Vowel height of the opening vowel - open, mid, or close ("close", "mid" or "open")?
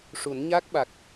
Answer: close